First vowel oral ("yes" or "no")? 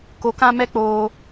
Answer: yes